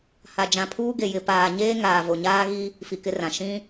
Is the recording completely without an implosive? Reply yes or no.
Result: yes